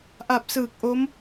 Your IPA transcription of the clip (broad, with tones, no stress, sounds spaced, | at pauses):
ʔ a˨˩ p̚ s ɯː˨˩ k̚ ʔ o˦˥ m